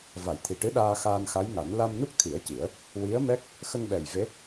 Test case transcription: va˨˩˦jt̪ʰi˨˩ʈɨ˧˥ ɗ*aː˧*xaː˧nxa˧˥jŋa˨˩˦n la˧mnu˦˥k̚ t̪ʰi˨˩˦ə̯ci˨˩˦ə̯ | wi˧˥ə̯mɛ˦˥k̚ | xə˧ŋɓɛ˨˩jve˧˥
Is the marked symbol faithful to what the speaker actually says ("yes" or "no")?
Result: yes